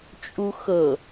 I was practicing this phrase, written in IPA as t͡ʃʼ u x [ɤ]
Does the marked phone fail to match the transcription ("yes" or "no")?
no